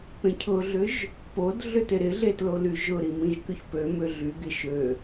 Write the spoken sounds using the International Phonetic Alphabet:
p ẽ cʰ ʊ ɮ ʏ ʒ | p o d ɮ ʏ t ɪ ɾ ɪ ɮ e t l o l y ʒ ʊ ɾ i m ĩ ʒ k ʏ ç p ø m ʏ ɮ y ɡ ɪ ʃ ø

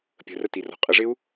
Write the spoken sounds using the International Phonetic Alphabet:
pʲ ə̤ r ə t i r ɔ̤ qʼ ə ʐ ɪ u̯

